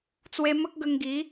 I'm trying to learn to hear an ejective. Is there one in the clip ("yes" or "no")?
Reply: no